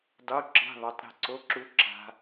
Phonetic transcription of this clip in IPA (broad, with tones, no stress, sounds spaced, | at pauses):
dˤ u˧˥˧ ǁ e̤˧˥˧ ðˤ u˩˧˩ tˤ ɾ e̤˦˨ ǀ o˧˥˧ ǁ u˦˥ ǁ a̤˦˥